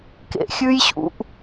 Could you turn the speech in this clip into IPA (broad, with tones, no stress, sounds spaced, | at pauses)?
k ḛ˨ xʲ ʉ˦ j ɕ ṵ˨ ʔ